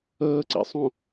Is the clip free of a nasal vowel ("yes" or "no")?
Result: no